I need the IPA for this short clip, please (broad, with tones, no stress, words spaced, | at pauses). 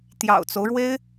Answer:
t̪jɑ̰˨˩ʊ̯t͡so˦ʊ̯ɻwe˥ɪ̯